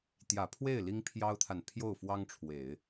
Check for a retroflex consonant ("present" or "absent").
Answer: present